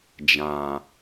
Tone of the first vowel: low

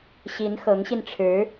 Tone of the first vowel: rising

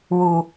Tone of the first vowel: low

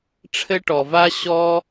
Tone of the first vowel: high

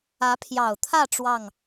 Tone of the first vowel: rising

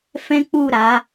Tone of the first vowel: high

